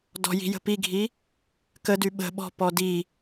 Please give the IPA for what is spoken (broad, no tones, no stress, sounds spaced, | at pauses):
d ɔ̤ j i̤ j ə̤ p i ɡʱ i | k ə d y ɓ ə̤ ɓ ɔ̤ p ɔ d i